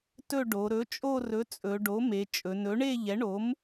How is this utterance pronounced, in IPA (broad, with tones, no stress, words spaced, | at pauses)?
tɵ˦˨ɖo˩˧ ɾɵ˩˥t͡ʃʼo˦˨rɵ˩˥ t͡sʼɵ˩˧ɖo˩˥me˩˧ t͡ʃʼɵ˩˧nɵ˩˥ɳe˦˨ ʎɛ˩˥ɳo˩˥m